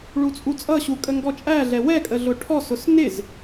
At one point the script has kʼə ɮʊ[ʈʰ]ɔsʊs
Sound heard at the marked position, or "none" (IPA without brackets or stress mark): ʈʰ